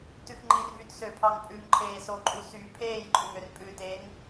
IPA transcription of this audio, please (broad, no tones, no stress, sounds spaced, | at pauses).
t ʉ x ŋ͡ǃ i r v y t s ø pʰ ɑ ŋ pʼ ʉ ŋ ǃʰ eː s o ǃʼ u s y pʰ eː j ǃʼ ʉ ŋ ø r pʼ ʉ t eː ŋ